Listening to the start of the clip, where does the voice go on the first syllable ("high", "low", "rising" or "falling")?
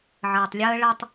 low